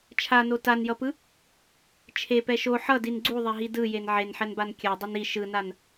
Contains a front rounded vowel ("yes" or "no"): no